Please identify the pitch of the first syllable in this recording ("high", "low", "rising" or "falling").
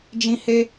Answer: high